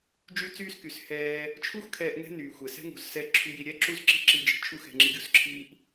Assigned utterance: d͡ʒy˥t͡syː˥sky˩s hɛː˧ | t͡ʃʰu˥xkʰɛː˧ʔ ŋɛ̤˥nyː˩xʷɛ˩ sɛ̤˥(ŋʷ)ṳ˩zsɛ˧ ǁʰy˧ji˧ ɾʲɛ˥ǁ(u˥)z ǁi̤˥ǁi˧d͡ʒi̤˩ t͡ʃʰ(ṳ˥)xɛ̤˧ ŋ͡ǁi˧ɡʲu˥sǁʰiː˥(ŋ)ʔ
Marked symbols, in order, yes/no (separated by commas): no, yes, no, no